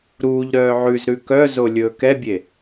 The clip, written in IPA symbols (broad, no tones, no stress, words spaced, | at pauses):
ɾuːʎɾœː ʕʉzɾʉ kœzo lʲɵːkɛbʲe